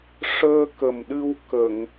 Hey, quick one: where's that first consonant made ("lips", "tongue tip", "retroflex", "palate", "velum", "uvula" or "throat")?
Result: retroflex